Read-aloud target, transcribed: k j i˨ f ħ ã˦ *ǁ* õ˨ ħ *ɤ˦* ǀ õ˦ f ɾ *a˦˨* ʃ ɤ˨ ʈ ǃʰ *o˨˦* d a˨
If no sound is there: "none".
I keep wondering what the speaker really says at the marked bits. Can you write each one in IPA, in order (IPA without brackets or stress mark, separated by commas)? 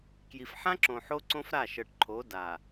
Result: ǁ, o˦, a˦˨, o˨˦